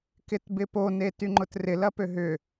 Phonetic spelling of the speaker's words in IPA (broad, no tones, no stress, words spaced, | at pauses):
kɪtbɪpo netyŋ͡ǃʊtrɪ lɐpøɦʏ